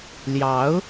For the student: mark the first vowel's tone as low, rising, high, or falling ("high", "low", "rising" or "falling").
rising